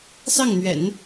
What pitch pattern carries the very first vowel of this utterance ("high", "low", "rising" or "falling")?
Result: falling